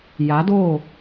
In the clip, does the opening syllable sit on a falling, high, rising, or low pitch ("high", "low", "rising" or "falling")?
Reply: rising